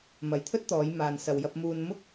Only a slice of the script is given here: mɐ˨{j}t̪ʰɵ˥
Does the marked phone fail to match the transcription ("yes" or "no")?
no